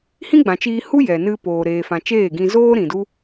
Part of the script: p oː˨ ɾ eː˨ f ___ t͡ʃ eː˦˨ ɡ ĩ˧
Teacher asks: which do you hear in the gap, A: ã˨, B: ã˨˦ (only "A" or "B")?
A